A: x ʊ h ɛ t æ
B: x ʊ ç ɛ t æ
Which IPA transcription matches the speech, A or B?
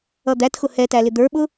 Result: A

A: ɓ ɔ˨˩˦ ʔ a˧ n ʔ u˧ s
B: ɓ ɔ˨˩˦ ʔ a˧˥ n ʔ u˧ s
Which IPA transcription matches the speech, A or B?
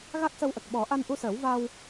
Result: A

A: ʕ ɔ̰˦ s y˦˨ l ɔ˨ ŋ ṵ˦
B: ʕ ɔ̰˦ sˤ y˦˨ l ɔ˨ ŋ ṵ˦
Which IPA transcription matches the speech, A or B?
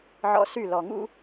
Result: A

